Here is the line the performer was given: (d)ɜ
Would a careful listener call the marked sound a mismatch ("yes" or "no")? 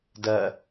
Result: no